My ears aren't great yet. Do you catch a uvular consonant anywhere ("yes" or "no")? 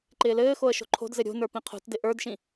yes